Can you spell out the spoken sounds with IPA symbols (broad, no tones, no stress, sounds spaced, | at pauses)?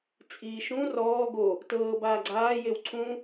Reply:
t͡sʼ iː ʃ ũ r ɔː ɡ o | t ɤː b aː ɡ͡ǀ aː j e w ǀʰ ũ